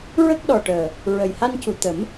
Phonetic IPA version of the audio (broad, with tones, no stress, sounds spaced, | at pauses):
ɹ ə˦˥ k̚ ɗ ɔ˨˩ ʈ əː˨˩ | ɹ ə˨˩ j h a˧ n c u˨˩ t̪ ə˨˩˦ m